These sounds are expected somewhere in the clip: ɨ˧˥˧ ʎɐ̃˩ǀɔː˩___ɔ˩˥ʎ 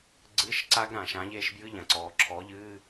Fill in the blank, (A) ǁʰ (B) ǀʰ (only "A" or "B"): A